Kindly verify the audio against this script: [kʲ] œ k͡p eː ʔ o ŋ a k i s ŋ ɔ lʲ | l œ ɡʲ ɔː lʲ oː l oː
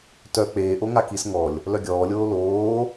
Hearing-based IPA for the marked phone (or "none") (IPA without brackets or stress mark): t